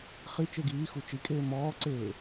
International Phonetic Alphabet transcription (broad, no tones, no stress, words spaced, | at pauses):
χi t͡ʃeɡiːxu t͡ʃikʼeː mɔːǀeː